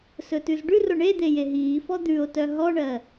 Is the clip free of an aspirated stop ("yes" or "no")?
yes